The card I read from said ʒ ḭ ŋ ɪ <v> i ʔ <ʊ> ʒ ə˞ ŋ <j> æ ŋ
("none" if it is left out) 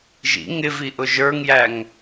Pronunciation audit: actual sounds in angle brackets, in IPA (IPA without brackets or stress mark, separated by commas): v, ʊ, j